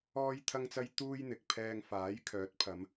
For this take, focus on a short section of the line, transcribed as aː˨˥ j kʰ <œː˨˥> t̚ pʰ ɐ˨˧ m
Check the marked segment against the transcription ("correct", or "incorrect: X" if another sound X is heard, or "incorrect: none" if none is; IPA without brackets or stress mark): correct